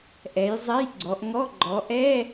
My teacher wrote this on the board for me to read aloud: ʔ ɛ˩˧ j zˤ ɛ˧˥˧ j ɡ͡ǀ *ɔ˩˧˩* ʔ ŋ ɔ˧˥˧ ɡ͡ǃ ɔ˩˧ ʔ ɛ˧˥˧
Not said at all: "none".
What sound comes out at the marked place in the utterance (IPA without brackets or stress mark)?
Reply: ɔ˩˧